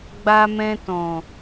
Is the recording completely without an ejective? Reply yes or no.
yes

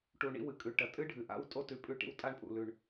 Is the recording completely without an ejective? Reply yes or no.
no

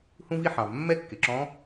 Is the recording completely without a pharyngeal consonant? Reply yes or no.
no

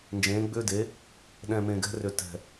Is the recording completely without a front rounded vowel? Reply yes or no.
no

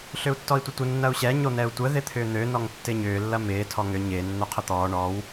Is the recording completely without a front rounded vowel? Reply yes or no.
no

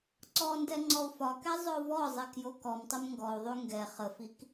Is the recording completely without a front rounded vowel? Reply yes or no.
no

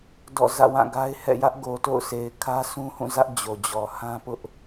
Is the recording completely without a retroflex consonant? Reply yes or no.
yes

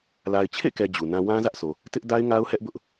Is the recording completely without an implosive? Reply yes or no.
yes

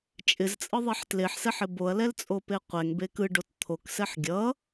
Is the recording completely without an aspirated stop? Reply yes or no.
no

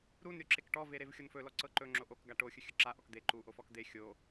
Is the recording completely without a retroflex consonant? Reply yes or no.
no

